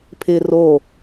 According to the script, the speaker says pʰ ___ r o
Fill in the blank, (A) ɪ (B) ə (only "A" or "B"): A